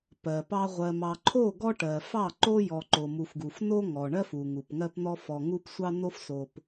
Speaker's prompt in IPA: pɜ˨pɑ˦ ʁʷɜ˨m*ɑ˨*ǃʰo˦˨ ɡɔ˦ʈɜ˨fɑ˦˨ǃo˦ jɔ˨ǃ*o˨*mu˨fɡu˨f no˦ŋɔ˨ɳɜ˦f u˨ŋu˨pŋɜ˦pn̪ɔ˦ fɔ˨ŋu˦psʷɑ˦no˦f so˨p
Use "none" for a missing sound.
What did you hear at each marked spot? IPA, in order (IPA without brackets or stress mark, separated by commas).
ɑ˨, o˨